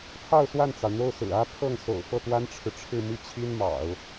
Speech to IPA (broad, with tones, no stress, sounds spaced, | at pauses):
pʰ ɑ˥˧ ʊ̯ s w a˥˩ n t͡s ɑ˩ ʊ̯ n̪ o˥˩ ʊ̯ s ɹ̩˨˩ ä˥ pʰ ɤ˥˩ ŋ s o̰˨˩ ʊ̯ f ɤ˥˩ t̪ w a˥ n ʈ͡ʂʰ ɻ̩˨ ʈ͡ʂʰ ɻ̩˥˧ m i˥˩ t͡ɕʰ i˥ n m ɑ̰˨˩˦ ʊ̯